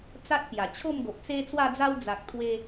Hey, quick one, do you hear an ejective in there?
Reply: no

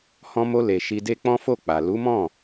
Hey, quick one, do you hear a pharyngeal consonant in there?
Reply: no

